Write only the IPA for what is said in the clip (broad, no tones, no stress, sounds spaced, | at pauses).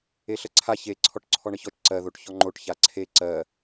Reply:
e ɬ ə ǀʰ a ç e ǀʰ ɔ ʈ ǀʰ ɔ ɳ ə ç ɔ t͡ʃ ǀ ɜ ð o ʈ ç ɔ ŋ͡ǃ o ʈ ç a ǀʰ e ǀ ɜ